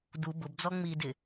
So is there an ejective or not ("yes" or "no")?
no